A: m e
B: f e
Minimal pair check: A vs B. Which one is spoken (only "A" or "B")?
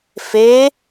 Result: B